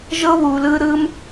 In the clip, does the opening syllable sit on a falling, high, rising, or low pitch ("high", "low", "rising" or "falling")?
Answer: high